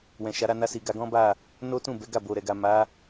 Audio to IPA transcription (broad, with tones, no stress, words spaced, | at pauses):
wɛ̃˨ʃa˨˦ɾa˧ na˧si˨ ɡa˧ɡɔ̃˦ba˦˨ | no˦tũ˦˨ bɛ˨˦ɡa˦˨bo˨ ɾɛ˨ɡa˨ ma˨˦